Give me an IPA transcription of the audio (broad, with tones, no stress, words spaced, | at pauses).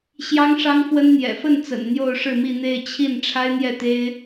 ɕjɑ˥ŋʂɑ˥ŋfwə˥n n̪jɛ̰˨˩fə˥˩nt͡sə̰˨˩n n̪jo˥˧ʊ̯ʂɻ̩˥˧mi˥˧n̪e˥˧ɪ̯ t͡ɕʰi˥˩n ʈ͡ʂʰa˥ɪ̯n̪jɛ˥˩t̪e˥ɪ̯